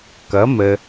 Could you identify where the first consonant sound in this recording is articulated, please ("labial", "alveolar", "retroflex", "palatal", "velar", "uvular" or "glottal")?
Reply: velar